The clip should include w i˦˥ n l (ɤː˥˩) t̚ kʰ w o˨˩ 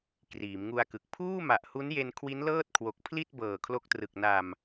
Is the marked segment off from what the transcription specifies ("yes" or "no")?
no